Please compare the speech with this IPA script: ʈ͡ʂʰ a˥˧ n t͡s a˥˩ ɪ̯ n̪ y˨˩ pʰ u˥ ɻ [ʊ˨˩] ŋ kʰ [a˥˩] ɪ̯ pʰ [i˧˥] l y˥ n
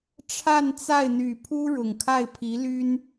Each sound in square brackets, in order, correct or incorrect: correct, correct, correct

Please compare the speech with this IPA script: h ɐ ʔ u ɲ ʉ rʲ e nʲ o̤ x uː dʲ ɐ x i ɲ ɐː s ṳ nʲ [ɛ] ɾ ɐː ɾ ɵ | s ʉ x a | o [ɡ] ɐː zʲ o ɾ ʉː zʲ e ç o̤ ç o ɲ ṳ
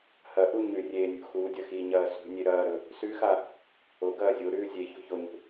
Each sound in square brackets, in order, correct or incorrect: incorrect: e, correct

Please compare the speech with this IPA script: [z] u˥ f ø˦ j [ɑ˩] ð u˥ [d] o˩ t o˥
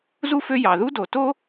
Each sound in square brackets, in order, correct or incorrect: correct, correct, correct

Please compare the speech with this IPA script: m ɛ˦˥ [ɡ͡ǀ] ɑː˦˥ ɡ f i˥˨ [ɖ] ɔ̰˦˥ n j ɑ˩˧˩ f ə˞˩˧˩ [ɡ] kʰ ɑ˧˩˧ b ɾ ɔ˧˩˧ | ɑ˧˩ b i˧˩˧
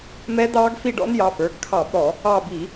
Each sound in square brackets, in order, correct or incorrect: incorrect: d̪, correct, correct

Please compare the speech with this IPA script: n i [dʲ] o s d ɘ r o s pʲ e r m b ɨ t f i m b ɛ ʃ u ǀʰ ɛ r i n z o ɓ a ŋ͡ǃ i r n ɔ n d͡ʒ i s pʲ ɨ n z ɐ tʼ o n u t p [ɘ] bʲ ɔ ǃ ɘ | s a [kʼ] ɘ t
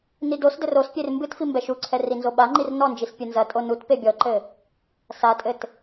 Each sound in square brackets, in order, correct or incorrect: incorrect: d, incorrect: e, incorrect: tʼ

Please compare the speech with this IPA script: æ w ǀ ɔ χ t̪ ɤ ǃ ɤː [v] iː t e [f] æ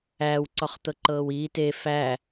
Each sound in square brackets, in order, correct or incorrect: incorrect: w, correct

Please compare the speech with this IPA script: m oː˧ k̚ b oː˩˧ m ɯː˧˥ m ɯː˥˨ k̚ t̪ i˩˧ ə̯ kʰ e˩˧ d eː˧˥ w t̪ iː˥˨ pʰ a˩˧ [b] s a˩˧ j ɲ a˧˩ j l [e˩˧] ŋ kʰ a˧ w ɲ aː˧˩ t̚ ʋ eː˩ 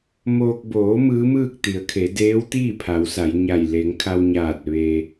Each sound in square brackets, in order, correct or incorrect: incorrect: w, correct

